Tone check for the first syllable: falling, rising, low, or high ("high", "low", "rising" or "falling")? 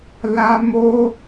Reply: high